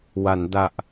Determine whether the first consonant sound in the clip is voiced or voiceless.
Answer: voiced